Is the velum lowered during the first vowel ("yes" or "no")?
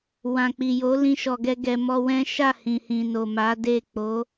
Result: yes